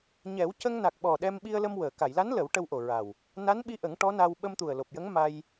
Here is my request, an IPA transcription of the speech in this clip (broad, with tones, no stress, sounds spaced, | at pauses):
ɲ ɛ˨˩˦ w c ə˧ ŋ n a˨˩ k̚ ɓ ɔ˨˩ ɗ ɛ˧ m ɓ i˧ ə̯ l ə˧ m w əː˨˩˨ k a˨˩˨ j l a˧˥ n l ə˨˩˦ w ʈ ə˧ w ʔ o˨˩ ɹ a˨˩ w | n a˧˥ n ɓ i˧ ʔ ə˨˩˦ ŋ ʈ ɔ˧˥ n a˧ w ɓ ə˧ m t̪ u˨˩ ə̯ l o˨˩ p̚ j ə˧˥ ŋ m a˧ j